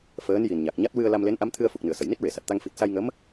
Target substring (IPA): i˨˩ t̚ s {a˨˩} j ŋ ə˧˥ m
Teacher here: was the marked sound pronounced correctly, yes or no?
no